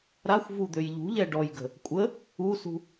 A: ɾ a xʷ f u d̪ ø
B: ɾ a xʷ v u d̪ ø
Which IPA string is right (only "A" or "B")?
B